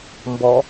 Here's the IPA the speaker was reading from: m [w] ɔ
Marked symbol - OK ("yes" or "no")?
no